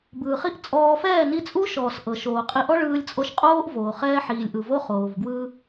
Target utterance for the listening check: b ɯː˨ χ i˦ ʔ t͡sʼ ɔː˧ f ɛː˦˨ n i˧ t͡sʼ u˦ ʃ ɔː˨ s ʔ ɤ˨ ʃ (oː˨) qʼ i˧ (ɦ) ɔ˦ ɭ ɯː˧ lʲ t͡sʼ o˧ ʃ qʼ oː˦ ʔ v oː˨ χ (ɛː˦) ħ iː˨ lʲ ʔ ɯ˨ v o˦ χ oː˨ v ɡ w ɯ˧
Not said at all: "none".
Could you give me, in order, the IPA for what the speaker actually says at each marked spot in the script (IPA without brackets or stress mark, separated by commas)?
oː˨, ʔ, ɛː˦